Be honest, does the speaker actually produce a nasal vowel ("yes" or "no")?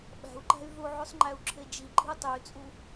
no